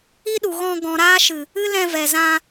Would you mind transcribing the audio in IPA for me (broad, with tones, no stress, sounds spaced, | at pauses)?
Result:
i˦ ɗ u˨ ɣ ɔ̃˧ ɡ ɔ̃˨ ɾ aː˧ ʃ ɨ˨ | ɨ˦ l ɛ̃˧ v ɛ˨ z ã˧